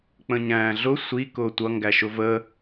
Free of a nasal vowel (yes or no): no